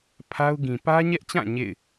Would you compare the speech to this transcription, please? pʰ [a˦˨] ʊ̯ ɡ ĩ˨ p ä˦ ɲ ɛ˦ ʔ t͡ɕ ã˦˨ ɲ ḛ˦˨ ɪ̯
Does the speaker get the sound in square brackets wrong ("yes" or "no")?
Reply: yes